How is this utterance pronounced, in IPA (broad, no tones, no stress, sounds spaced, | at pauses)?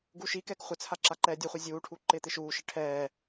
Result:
ɡ u ʃ i k ɛ k χʷ ɪ t͡sʰ a ǁ a ǃ ɛː dʲ u χʷ ɛ zʲ uː ʈʰ uː ǃ ɪː t̪ ɪ ʃ uː ʃ ɪ ʈʰ ɛː